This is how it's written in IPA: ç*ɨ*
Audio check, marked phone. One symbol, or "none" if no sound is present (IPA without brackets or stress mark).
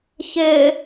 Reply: ɪ